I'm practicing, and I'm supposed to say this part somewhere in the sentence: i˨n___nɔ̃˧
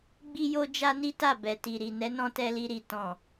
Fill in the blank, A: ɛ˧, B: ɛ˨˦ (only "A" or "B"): B